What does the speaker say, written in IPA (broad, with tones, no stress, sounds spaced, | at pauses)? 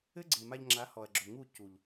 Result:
ɘ˦ ɡ͡ǀ e˨ m a˧ ʎ ŋ͡ǁ a˨˦ h ɔ˨ ɐ̯ ɡ͡ǁ o˨ ŋ u˦˨ c u˨ ʎ